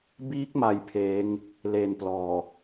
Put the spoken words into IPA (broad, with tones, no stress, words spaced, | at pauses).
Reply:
biː˦˥k̚ma˨˩j pʰeː˦˥ŋ | leː˨˩nplɔː˨˩